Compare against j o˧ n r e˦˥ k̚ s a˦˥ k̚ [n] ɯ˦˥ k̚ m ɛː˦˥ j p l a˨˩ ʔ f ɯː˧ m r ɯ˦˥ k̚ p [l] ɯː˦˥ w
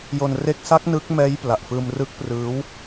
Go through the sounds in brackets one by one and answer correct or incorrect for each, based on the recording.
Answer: correct, incorrect

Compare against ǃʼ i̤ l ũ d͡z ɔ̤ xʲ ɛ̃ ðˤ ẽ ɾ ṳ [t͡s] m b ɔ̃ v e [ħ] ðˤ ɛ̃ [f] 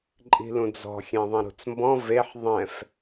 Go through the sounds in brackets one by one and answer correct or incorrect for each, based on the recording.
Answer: correct, correct, correct

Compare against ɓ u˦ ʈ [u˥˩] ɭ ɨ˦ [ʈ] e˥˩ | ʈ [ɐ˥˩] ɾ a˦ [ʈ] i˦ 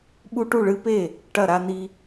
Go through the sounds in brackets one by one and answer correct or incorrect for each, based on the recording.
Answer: correct, incorrect, correct, incorrect

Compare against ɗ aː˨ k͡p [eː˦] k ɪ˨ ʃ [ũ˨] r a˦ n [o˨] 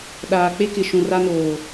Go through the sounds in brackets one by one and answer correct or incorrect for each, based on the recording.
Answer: incorrect, correct, incorrect

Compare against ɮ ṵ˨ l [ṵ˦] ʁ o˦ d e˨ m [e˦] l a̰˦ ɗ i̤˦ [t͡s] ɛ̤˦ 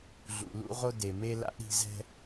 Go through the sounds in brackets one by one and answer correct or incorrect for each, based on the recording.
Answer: correct, correct, incorrect

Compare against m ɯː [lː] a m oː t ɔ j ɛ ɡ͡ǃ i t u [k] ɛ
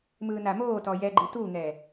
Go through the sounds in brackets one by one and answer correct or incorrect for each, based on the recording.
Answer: incorrect, incorrect

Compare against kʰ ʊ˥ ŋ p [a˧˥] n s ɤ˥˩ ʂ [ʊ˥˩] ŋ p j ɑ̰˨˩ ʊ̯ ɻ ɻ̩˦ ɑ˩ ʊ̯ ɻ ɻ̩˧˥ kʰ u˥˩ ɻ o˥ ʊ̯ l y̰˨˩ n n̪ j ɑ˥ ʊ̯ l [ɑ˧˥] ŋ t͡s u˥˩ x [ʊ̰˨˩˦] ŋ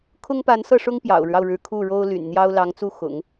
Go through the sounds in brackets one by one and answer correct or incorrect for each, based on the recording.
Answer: correct, incorrect, correct, correct

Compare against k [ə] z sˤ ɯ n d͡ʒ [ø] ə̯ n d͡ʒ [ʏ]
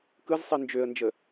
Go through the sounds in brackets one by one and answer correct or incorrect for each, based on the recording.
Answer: incorrect, correct, incorrect

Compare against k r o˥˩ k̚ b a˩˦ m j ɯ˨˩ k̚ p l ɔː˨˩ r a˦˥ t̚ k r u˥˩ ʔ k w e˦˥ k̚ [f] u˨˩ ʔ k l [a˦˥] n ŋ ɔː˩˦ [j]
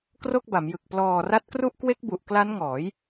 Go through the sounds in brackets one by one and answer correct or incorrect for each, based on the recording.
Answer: incorrect, correct, correct

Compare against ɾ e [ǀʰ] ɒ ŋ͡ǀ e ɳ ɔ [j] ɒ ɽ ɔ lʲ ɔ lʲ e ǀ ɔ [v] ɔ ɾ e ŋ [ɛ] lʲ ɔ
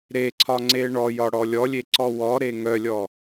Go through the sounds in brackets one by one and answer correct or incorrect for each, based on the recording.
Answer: correct, correct, incorrect, incorrect

